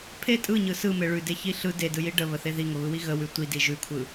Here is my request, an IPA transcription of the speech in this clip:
pʰ e tʼ ɯ ɲ ɯ s ɯ m e ɭ ʉ d e ç i ɬ ɯ d e d ɯ j i ɖ ə β ə θ e ð i ŋ ə β ɯ w i ɣ ə w ʉ tʷ i d i ʒ ʉ kʷʰ ɯ

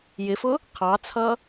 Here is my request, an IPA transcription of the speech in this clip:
j ɪ f ʊ | qʰ ɑ t͡sʰ ʌ

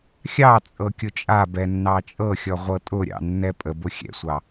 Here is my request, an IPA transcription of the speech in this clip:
xʲ ɑ t͡sʼ ɤ kʲ ʊ t͡ʃʼ a b ɛ nː ɑ t͡ʃʼ ɤ xʲ ɔ ʁʷ ɤ tʼ ʊ ɾʲ ɑ̰ nː ɛ pʼ ə b ʊ xʲ ɛ̰ sʷ ɑ

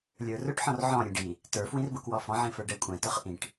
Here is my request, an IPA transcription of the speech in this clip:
lʲ ə˞ r ʊ ʈ ħ ɔ̃ r ʕ ɔ̃ ɾʲ ɛ̃ ɖ i | t ə˞ f w ĩ r b ʊ k w ɔ f ɔ̃ ʕ ĩ f ə˞ ɖ ɛ kʷʼ ɛ̃ t ʊ χ ʔ ĩ ʈ

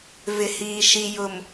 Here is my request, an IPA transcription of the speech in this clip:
v ɪ˨ h iː˨ ʃ i˨ j ʊ˨ m

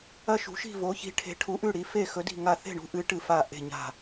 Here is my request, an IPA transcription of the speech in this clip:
ɐ˦˨ ʃ ṳ˨˦ ʃ i̤˦˨ v o˨˦ ç i̤˨˦ ʈʰ e̤˨˦ ʈʰ u˨˦ ʔ ʉ˦˨ ɽ i˨˦ f e˦˨ x ɵ˨˦ d i̤˦˨ ŋ a˦˨ θ e̤˦˨ ɳ ṳ˨˦ ʔ ɨ˨˦ ʈ ɨ˦˨ f a˦˨ ʔ e̤˦˨ ɲ a̤˦˨

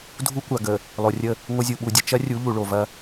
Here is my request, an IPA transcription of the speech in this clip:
dʱ u˦ kʷ a˨ ɡ ə˨ | lˠ o˨ rʲ ə˦˨ | ŋʷ ə˦ zʲ u˨ ɓ u˨ dʲ ə˨ t͡ʃ ɐ˦ rʲ u˨˦ ʎ u˨ ɭ o˨ v ɐ˦

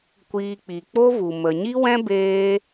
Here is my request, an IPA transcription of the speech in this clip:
kʷ iː˧ k͡p i˨ k͡p o˦ v u˨ m ə˨ ɲ i˦ w ɛ̃˦ b eː˦

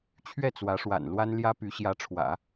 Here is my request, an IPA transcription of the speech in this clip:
t͡ɕʰ ɥ ɛ˥˩ t͡s w ä˧˥ ʂ w a̰˨˩ n l w a˥ n l j ä˥ p y˧˥ ɕ j ä˧˥ ʈ͡ʂʰ w ä̰˨˩˦

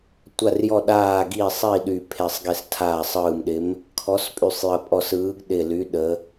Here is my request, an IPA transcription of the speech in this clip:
tʷ a˧˩ r j ɔ˧˩ ɗ aː˧˩ ɡ i˧˩ sˤ i˧˩ ɗ y˧˩ pʰ e˧˩ sˤ ɡ e˧˩ s tʰ aː˧˩ sˤ ɯː˧˩ m ɗ ɪ˨˥ m | kʰ ɔ˨˥ s pʼ y˧˩ sˤ j ə˧˩ pʼ ɔ˧˩ s ɯː˨˥ ɡ ɗ ɪ˧˩ l y˨˥ ɗ ə˨˥

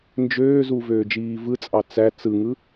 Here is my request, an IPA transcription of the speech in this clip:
n d͡ʒ øː z u v øː d͡ʒ iː v ɯ t͡sʼ ɑ t͡s æ t͡s ɯ ŋ ɯ

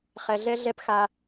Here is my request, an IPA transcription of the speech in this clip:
χ ɛ˦ ɮ ɛ˥ ɮ ɛ˥ p x a˥

